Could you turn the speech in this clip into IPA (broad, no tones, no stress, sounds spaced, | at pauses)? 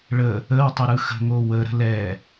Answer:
ɭ ə | ə w tˤ ə ɾ ɯ x ə̤ ŋ o w ə ɾ ə̤ l ɛ